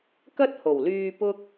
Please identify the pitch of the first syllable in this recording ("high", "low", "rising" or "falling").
high